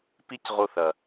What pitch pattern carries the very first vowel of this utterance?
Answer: high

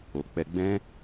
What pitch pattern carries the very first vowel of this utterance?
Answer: low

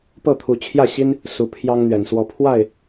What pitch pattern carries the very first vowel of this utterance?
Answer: falling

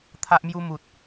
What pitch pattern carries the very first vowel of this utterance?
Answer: high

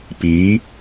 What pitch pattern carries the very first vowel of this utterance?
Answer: rising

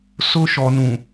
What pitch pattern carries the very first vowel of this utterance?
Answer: high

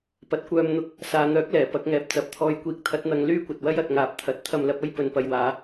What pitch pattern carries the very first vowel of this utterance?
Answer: low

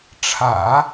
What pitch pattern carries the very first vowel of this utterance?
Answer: low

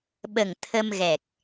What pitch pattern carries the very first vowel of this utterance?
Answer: low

